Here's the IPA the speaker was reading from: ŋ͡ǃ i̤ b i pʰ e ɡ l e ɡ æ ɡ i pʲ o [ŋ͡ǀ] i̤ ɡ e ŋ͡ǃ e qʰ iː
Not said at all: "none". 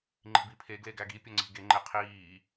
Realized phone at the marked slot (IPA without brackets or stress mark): ŋ͡ǀ